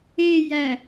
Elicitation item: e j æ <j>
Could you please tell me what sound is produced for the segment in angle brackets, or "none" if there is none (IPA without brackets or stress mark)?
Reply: none